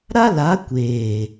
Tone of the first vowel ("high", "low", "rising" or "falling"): high